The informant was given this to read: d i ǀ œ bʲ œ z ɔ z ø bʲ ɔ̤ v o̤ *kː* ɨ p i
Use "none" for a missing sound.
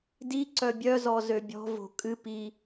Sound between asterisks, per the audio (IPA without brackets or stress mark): kʼ